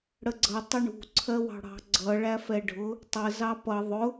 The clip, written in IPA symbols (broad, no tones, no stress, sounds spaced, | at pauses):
ɽ ə ɡ͡ǀ ʌ tˤ ɪ ɳ ṳ ǀʰ ɜ w ɑ̤ ɽ ɑ̤ ɡ͡ǀ ʌ ɭ æ f ɛ ɖʱ ʊ | tˤ ə z ɑ p ʌ ðˤ ʊ